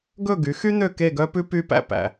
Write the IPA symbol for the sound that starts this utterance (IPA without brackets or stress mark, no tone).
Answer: ɡ